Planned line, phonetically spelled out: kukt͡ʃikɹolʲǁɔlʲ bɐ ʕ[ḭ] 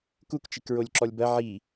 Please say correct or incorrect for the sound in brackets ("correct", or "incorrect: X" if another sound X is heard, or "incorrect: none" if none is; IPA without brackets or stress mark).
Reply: incorrect: i